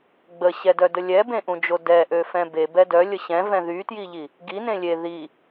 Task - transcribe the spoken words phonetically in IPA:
ɡ͡bəɕɛdœdə lʲɛbẽʔũd͡ʒo dɛʔøfɛ̃ bebɛ dœlʲə ɕɛ̃vɛ̃ ðytjiʎi | ɡinẽ lʲe ði

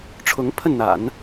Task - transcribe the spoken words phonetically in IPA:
ʈ͡ʂʰʊ˧˥ŋ pʰə˥˩nn̪a̰˨˩˦n

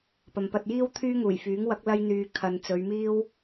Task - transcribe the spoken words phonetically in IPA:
pɐ˨mpɐ˧t̚jiː˥wt̪ʰyː˥ ŋuː˨˩jfyː˨˥ŋwɐ˨˥k̚ lɐ˧jn̪yː˨ kʰɐ˨nt͡sɵ˨˧ɥmiː˥w

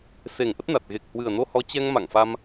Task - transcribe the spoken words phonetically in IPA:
se˨˩ŋ ʔə˦˥t̚na˨˩t̚ ɣe˨˩k̚hwɨ˨˩ə̯no˧hɔ˨˦ t͡ɕɛ˧ŋma̰˧˨ŋfa˧m

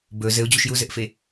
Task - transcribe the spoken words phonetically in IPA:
bɵ zɘʊ̯d͡ʑuʃ juzɘʔfe

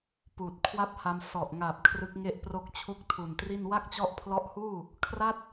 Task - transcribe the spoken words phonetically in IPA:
puː˨˩t̚ kʰwa˥˩p̚ha˧m sɔ˨˩ʔŋaː˨˩p̚ kʰrɯ˦˥k̚ŋe˥˩ʔpro˥˩k̚t͡ɕʰu˥˩k̚ tʰu˨˩ntri˥˩n wa˥˩k̚t͡ɕɔ˦˥ʔpʰlɔ˦˥ʔhuː˥˩ | kʰra˥˩t̚

